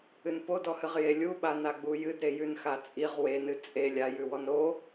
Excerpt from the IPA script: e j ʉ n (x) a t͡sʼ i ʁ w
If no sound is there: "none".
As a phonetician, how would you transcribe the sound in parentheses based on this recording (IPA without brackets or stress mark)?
x